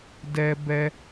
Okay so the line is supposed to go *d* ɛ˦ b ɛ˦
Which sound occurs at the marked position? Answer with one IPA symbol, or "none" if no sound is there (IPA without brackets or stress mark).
d